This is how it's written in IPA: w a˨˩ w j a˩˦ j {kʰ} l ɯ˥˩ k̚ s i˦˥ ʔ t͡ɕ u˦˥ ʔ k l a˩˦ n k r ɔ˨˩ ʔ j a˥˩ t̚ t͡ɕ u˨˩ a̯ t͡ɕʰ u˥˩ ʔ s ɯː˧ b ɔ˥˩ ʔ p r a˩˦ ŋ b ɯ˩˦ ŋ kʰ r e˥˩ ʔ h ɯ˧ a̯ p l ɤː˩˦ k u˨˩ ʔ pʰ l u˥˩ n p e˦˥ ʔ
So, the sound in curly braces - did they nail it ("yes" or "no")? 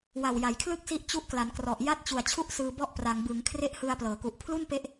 yes